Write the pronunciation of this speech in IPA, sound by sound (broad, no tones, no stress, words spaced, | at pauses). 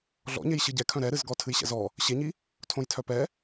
ɮɔ̰ɲej ɕɨɟɛkʰœ̃ ɾɛɾɨzɡɔ tʰɨjɕɛ̰zɔ | ɕeɲi | tʰõjtʰœpɛ